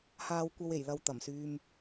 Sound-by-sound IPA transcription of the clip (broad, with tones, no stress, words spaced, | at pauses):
haː˧wkʷɐ˧we˨˩jlɐ˨w t̪ɐ˨˩msyː˧m